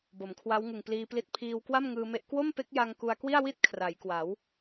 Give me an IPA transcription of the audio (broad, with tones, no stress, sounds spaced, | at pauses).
b o˩˦ m kʰ w a˦˥ w ŋ ɯ˨˩ ŋ p l iː˧ p l i˦˥ t̚ pʰ iː˧ w k w a˥˩ m ŋ ɯː˧ m e˦˥ ʔ k w o˥˩ m p e˦˥ k̚ j a˧ ŋ k u˧ a̯ k w i˥˩ a̯ w i˥˩ t̚ kʰ r a˩˦ j k w a˩˦ w